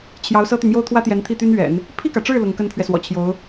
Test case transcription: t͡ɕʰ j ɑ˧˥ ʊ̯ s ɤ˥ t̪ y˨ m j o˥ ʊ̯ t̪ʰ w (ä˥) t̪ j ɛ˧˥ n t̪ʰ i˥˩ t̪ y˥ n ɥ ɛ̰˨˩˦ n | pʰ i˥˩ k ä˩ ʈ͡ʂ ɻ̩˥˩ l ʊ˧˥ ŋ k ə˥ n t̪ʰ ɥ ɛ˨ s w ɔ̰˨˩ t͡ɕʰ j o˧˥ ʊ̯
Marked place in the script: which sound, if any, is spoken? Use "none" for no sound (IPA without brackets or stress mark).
ä˥